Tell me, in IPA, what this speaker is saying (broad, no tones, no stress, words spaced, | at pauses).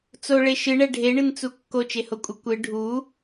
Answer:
t͡soɭe ʃɨɳɛ ɖʱeɳɨnt͡su kːot͡ʃehokʷʼɨ kʷɨ ɖʱu